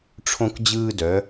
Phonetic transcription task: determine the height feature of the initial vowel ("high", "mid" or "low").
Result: mid